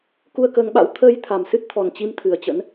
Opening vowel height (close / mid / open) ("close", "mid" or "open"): close